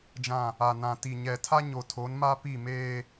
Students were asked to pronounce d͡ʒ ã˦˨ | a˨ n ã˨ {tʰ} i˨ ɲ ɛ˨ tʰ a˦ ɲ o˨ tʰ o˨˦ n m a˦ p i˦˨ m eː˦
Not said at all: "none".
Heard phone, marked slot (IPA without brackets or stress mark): t